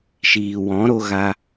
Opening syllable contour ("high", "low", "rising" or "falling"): low